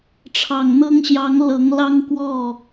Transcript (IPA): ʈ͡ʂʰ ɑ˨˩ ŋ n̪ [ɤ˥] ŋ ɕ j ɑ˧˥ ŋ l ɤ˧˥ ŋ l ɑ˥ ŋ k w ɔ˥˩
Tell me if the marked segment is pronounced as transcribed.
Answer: yes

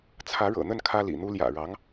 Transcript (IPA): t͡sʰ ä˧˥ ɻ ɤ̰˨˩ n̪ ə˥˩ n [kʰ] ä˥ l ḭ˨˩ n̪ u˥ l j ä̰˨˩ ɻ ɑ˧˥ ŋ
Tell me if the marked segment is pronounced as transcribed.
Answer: yes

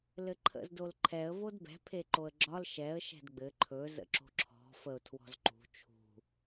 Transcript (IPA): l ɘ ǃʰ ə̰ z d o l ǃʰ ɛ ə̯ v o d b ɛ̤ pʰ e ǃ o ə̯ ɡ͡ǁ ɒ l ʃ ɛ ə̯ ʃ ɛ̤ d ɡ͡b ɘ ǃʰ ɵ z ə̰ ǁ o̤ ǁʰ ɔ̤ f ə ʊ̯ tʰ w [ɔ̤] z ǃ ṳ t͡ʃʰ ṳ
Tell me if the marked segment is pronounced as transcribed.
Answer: yes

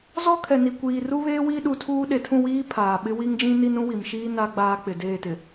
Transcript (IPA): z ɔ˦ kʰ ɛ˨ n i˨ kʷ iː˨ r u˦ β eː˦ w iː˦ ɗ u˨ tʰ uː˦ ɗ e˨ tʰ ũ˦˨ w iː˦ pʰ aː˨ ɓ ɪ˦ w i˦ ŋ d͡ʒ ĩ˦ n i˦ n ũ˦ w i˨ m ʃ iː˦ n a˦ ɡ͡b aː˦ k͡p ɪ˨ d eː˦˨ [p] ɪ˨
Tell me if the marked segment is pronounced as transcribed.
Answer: no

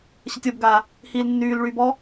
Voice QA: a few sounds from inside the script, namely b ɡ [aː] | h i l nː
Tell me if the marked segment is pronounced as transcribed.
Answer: yes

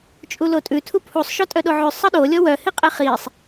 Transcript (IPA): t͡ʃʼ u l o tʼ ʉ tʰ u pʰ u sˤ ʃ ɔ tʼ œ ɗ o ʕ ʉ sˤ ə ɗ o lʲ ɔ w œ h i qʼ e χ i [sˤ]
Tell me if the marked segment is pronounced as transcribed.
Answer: yes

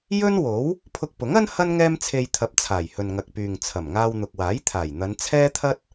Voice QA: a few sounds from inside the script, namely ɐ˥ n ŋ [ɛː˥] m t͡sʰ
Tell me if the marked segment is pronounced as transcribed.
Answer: yes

